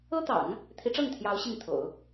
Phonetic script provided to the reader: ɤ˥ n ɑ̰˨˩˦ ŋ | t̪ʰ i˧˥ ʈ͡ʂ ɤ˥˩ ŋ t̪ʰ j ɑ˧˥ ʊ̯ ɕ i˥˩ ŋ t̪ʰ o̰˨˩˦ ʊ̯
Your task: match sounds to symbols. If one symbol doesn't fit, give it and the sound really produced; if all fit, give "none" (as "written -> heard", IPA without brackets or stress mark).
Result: n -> t̪